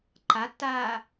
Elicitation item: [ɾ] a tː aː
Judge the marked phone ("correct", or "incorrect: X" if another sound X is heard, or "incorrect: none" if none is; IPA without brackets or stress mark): incorrect: ǃ